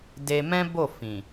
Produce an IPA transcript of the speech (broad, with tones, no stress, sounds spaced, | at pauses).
d e˧ m ɛ̃˦ b o˦˨ f ĩ˨